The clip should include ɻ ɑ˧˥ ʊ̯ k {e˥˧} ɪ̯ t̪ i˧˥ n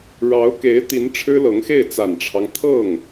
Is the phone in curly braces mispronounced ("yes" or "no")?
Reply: yes